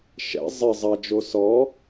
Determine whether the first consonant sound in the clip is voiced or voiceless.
voiceless